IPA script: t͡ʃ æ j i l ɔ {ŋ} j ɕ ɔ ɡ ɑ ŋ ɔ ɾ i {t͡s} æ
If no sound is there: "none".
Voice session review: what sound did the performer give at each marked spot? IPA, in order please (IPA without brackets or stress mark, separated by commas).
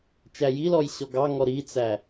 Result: none, t͡s